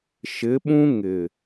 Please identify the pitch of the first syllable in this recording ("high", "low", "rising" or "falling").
rising